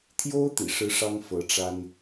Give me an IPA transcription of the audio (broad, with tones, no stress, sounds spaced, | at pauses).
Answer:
t̪ʰ j o˥ ʊ̯ t̪ ḭ˨˩ ʂ ɻ̩˥ ʂ ɑ˥ ŋ f ɤ˧˥ ʈ͡ʂ a˥ n